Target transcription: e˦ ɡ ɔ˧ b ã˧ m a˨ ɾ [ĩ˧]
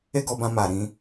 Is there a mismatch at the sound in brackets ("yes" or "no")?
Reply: no